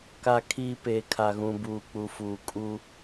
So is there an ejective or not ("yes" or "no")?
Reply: yes